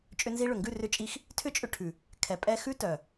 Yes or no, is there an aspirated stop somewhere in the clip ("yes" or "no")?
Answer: yes